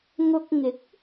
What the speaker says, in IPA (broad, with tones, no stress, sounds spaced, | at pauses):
ŋ ʊ˧ k̚ ŋ ɪ˨˥ k̚